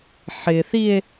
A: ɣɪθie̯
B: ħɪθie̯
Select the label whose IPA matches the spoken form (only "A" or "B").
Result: B